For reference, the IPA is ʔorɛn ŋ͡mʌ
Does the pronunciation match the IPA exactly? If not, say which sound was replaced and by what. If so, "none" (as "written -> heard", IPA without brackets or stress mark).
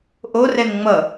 none